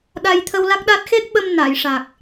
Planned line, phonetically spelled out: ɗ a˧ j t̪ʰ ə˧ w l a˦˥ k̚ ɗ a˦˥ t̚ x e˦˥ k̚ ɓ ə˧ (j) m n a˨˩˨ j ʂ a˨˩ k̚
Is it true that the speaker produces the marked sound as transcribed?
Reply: no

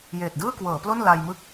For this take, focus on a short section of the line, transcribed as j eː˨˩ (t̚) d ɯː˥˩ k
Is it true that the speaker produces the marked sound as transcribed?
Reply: yes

